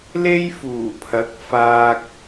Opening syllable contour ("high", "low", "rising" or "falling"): high